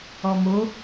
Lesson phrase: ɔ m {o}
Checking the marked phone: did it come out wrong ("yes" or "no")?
no